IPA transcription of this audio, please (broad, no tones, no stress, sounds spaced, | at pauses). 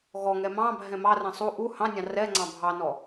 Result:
ɣ ɔ ŋ ɛ m ɑ̃ bʱ ɛ̃ m ɑ r ɛ̃ sˤ u ʔ u h ɑ̃ nʲ ɑ̃ r ɛ ŋ͡ǀ ɑ̃ bʱ ɑ n ɔ